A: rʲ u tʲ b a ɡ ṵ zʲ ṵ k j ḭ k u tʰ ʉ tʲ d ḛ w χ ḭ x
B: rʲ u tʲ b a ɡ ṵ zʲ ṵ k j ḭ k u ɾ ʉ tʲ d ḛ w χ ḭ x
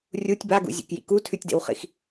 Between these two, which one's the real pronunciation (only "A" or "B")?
A